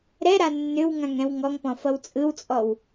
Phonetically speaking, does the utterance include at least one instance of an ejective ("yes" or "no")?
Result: yes